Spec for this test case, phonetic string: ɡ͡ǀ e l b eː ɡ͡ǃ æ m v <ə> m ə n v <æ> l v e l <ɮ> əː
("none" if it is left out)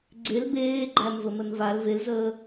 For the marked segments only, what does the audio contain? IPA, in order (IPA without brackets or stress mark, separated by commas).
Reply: ə, a, z